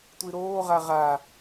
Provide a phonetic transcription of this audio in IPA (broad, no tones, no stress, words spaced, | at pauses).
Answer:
tʷiɾoːʁa ʁa